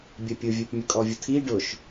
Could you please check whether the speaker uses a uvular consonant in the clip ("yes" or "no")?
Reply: no